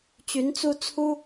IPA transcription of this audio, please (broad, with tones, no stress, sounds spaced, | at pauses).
t͡ɕ y˧˥ n t͡s u˥ t͡sʰ u˥